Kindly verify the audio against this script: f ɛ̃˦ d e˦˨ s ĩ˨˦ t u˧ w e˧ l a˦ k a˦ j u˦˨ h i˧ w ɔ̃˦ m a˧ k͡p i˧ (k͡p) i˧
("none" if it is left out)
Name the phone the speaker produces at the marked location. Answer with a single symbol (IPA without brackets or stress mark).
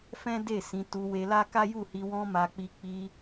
k͡p